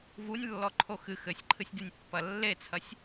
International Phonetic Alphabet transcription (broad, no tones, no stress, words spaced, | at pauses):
vunʲlːɔǃʰo xɨ xɘsʲǃʰɨsʲdenʲpːɐ lːet͡sʰɐsʲ